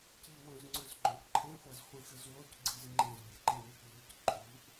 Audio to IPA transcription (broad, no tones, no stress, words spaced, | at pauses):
ciwõzŋ͡ǀɵzɡ͡ǃõʔ ǃʰẽχʷɐzχʷĩxɨz wocɡ͡ǀiz ŋ͡ǃẽzbʲɐǃẽmʲɵʔ ʎɨc ǃʼuʔ